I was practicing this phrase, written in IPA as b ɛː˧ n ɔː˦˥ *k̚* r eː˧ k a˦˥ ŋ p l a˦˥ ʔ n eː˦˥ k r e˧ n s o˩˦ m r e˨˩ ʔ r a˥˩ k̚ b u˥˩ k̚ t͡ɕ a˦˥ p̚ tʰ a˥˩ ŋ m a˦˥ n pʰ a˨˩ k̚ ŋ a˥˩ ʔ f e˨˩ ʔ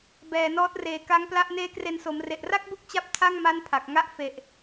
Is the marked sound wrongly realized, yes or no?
yes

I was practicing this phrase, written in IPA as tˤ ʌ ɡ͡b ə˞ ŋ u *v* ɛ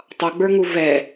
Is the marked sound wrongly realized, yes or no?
no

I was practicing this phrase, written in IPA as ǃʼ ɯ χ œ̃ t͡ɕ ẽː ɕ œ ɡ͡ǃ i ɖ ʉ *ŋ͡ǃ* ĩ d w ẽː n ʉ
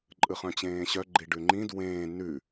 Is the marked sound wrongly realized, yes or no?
no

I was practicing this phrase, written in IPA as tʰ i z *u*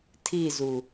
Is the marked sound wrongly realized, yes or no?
no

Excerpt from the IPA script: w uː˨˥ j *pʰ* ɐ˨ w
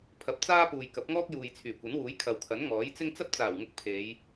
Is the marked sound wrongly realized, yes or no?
yes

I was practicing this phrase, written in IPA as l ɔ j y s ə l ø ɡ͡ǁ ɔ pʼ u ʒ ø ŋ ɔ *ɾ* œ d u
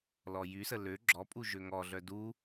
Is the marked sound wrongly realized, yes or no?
yes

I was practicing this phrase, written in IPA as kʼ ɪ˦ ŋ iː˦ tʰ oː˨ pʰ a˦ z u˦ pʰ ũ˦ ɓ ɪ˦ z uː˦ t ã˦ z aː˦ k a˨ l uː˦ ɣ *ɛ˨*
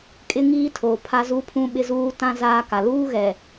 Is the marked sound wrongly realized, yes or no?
no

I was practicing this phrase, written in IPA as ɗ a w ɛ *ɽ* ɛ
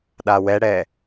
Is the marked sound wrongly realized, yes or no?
no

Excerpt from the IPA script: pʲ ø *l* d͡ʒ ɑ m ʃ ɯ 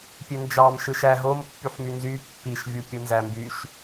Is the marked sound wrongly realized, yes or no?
yes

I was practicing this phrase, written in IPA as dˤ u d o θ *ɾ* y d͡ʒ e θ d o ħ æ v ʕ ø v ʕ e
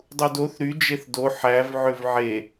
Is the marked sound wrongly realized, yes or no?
no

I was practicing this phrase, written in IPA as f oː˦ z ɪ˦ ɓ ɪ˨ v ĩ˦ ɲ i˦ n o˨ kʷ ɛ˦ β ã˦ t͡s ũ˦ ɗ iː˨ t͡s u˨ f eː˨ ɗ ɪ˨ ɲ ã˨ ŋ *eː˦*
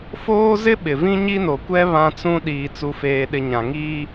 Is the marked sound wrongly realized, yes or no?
yes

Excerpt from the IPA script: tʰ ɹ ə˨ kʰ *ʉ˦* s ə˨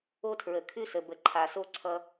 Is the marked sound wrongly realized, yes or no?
no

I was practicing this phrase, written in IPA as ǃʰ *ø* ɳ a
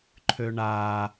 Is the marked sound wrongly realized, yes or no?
no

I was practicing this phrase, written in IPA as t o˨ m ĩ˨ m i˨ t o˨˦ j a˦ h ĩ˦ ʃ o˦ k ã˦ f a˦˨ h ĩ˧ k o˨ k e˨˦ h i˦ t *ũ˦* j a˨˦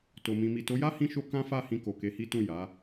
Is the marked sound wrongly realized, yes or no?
yes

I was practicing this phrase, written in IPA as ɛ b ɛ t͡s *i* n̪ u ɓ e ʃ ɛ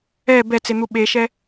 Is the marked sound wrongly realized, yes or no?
yes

